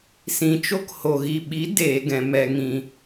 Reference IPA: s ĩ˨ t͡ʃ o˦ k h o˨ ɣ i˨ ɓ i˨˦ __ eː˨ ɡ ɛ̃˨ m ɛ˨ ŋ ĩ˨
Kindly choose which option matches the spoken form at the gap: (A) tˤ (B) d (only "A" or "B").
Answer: B